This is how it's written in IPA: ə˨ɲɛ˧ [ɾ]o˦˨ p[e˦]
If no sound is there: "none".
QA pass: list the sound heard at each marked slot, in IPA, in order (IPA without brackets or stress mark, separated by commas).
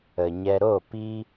ɾ, i˦